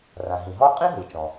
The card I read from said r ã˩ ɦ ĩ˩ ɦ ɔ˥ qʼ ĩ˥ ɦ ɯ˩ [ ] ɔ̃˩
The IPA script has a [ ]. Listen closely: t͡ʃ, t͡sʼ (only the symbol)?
t͡ʃ